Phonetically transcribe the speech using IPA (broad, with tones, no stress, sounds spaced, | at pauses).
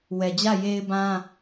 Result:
w ɛ˨ d͡ʑ ä˦˨ j e˦ ɪ̯ b ã˦